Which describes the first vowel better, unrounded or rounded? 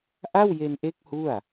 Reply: unrounded